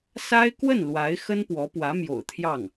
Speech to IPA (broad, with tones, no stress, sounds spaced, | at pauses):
s a˥ ɪ̯ k w ə˥˩ n l w a˧˥ ɪ̯ x ə˥ n p w ɔ˧˥ p w ä˧˥ m j o̰˨˩ ʊ̯ t̪ʰ j ɑ˥˩ ŋ